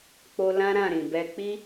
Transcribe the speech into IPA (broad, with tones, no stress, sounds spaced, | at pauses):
k͡p o˧ l ã˦ ɾ ã˦˨ ɾ ĩ˨ b ɛ˧ k͡p i˦